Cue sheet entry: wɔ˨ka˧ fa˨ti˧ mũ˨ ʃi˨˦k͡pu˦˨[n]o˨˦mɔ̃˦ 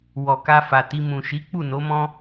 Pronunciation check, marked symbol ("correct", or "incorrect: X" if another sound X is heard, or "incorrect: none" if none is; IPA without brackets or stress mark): correct